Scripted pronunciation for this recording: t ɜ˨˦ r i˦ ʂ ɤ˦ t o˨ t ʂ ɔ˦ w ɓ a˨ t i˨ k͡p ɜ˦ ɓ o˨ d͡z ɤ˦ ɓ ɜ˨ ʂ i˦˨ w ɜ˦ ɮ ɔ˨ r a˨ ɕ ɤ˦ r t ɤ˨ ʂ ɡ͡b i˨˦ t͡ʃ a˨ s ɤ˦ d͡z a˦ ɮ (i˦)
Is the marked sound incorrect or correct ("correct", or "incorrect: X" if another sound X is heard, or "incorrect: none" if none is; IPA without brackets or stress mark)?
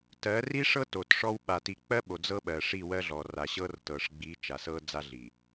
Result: incorrect: i˨